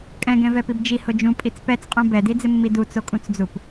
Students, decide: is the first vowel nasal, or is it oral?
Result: nasal